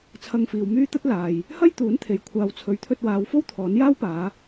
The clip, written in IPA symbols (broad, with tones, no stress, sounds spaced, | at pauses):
t͡sʰ ɐ˧ ŋ f iː˨ w m yː˥ t̪ ɐ˥ t̚ l aː˨ j | h ɐ˥ j t̪ uː˨˥ n t̪ʰ e˨˥ j kʷʰ aː˨ w t͡sʰ ɵ˨˥ ɥ t̪ʰ ɵ˧ t̚ w aː˨˧ w f o˥ w t̪ʰ ɔː˨˥ n j aː˥ w p aː˨˧